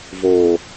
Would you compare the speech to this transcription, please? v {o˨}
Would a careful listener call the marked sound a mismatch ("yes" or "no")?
yes